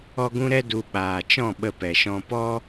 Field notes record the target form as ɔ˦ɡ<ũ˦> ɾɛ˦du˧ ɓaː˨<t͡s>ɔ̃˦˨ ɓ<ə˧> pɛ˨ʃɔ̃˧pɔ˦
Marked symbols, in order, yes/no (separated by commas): yes, no, yes